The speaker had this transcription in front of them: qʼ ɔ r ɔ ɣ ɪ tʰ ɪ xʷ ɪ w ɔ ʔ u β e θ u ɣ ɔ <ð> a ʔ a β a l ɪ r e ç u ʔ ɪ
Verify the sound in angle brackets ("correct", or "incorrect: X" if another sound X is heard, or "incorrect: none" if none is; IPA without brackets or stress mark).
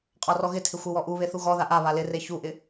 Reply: correct